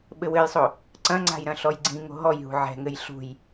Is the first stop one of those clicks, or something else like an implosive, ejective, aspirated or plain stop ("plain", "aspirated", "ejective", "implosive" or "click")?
implosive